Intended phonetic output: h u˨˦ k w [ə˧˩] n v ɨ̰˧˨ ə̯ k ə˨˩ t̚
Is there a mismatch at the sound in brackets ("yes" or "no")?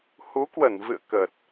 no